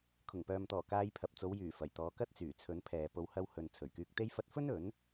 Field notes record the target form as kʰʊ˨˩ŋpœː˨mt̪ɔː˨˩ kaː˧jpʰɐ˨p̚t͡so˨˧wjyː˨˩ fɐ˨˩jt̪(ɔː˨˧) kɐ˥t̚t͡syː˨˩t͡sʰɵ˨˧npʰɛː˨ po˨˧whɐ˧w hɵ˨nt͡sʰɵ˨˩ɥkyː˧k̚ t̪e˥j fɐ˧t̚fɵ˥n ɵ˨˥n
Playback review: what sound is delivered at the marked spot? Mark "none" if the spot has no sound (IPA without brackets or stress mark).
ɔː˨˧